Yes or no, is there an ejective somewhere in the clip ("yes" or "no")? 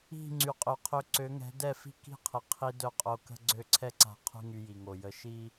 yes